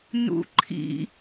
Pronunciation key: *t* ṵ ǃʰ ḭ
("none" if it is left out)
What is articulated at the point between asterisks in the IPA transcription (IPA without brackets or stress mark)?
n